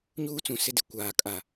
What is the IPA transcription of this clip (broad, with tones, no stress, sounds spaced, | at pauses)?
ɲ uː˦ t͡s ũ˨ s ɪ˦ d ɪ˨ kʷ aː˨ kʼ a˨